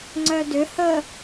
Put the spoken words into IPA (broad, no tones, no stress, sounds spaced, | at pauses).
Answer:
ŋ͡ǀ œ d ʏ h ə